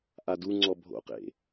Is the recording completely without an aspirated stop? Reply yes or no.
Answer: yes